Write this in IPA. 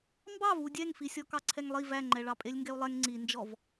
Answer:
m b ɑ v u dʲ ɛ ŋ f i sʲ ɔ k ɑ ǀʰ ɛ ŋ lˠ i v æ ŋ͡ǃ ɛ ɭ ɑ pʼ e lʲ ŋ ɡ ɛ u̯ lˠ ɛ ŋ ŋ͡ǀ i n d͡ʒ ɔ v

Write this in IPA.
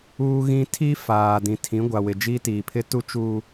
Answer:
uː˦ ɣ ĩ˦ tʰ i˦ f aː˨ d ĩ˨ tʰ ĩ˨˦ ɡʷ a˨ w ɪ˨ d͡ʒ iː˦ t iː˨ pʰ ɪ˦ t u˦ t͡ʃ uː˨

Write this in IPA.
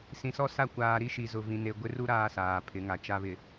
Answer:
s ĩ˨ s ɔ˦ s a˦˨ kʷ aː˨ ɾ i˦ ʃ i˨ z ʊ˨ v ĩ˨ n e˨ ɡʷ ɪ˦ r u˦ ɾ aː˦ s aː˨ pʰ ɪ˨˦ ŋ a˨ t͡ʃ a˨ β ɪ˨

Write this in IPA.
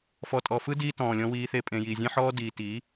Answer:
f ɔ˨ tʼ ɔ˨ f ɯ˦ d iː˦ t ɔ̃ː˨ lʲ ɔ̃˧ w iː˧ θ e˧ pʼ ẽ˨ j iː˨ zʲ ẽ˦ ħ ɔː˦ d iː˨ t i˨˦

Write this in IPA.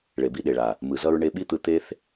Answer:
ɭ e˨ b i˧ ɗ e˨ ɭ a˨ | m ɯ˨ z ʌ˧ ɹ ɳ e˧ ɓ i˦ t̪ ɯ˧ t̪ e˦ θ

